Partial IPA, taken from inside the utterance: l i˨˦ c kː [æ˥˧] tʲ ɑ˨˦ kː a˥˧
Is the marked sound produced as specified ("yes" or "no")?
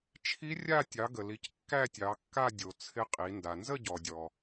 yes